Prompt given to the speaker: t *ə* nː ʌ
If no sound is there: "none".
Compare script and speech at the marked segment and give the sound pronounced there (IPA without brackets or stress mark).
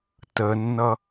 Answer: ə